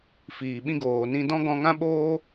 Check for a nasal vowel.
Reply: present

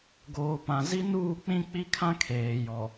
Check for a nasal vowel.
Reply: present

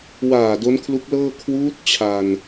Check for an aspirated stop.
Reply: present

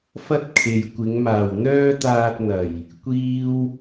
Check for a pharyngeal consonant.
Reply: absent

